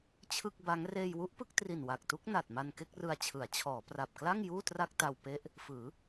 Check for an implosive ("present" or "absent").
absent